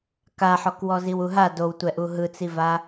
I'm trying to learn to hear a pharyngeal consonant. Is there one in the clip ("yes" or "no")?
yes